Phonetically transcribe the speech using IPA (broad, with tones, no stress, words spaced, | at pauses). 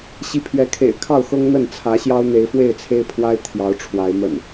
ɕi˨˦pʰɥɛ˨˦kʰḛ˨˩ɪ̯ kʰɑ˥˨ʊ̯xɤ˦ŋ n̪ə˥˨nt͡sʰä˨˦ ɕjɑ˦ʊ̯n̪e˨˦ɪ̯fwe˥˨ɪ̯t͡sʰe˦ɪ̯ pʰwa˦ɪ̯ t̪ʰjɑ˨˦ʊ̯ʈ͡ʂʰwa˨˦ɪ̯ mə̰˨˩n